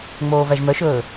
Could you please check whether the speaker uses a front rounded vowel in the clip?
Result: yes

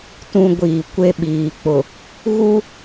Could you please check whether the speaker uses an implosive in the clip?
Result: yes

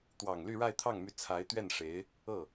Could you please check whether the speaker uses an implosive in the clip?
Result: no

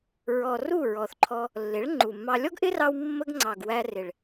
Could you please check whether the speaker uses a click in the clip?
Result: yes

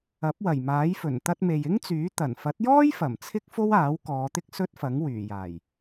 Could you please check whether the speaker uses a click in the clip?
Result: no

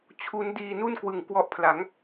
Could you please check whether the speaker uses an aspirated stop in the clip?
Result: yes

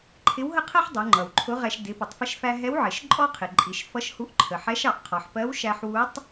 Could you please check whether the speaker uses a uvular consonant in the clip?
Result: yes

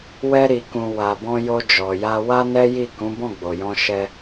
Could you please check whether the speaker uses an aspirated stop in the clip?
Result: no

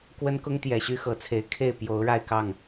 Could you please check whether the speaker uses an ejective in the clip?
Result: no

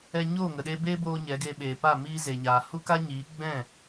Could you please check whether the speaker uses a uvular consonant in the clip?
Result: no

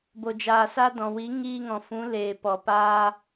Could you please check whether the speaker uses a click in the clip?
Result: no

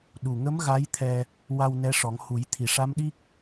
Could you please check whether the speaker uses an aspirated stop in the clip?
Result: yes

